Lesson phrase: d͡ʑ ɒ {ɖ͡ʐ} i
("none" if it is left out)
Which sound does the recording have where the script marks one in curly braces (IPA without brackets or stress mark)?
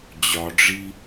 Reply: ɖ͡ʐ